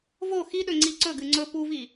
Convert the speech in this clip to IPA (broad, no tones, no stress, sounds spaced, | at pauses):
v o x i ɗ ɵ ŋ͡ǀ i ǀ ɵ ɡ ɨ ŋ͡ǀ ɵ p u v i